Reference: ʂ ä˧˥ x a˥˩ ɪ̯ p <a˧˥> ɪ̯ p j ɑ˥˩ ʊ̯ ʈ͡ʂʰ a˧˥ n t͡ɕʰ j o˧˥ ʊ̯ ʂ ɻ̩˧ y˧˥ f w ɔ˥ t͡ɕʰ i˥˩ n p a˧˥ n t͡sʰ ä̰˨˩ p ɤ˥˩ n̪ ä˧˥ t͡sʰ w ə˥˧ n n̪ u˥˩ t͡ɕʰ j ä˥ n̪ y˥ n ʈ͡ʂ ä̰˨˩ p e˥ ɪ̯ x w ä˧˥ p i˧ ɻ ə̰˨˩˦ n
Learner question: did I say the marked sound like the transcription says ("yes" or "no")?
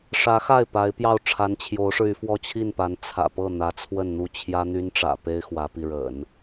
yes